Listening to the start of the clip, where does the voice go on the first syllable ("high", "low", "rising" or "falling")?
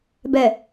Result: low